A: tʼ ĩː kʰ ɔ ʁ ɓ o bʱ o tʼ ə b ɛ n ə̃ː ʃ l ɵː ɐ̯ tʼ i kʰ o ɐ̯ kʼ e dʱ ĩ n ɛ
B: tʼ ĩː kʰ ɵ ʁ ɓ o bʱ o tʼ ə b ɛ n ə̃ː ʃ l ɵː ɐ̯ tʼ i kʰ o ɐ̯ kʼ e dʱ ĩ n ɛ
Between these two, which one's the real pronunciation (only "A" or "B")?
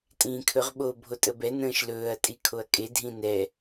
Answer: B